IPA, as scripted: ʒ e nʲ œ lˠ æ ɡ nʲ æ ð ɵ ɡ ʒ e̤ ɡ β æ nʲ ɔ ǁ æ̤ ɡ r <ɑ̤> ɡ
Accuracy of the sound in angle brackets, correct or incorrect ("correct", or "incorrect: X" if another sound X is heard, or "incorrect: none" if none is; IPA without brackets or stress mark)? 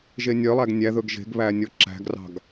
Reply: correct